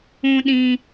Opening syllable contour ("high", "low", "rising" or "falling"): low